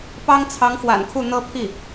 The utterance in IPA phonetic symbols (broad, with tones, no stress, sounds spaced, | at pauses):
p ɑ˥ ŋ t͡sʰ ɑ˧˥ ŋ x w a̰˨˩ n kʰ u˥˩ n̪ ɤ˥ pʰ i˥˩